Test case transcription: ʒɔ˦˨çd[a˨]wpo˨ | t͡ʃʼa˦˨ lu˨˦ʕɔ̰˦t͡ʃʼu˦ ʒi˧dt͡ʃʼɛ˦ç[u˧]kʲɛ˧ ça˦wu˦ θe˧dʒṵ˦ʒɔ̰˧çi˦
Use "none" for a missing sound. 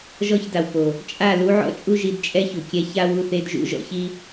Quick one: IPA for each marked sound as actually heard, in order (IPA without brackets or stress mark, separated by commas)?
a˨, u˨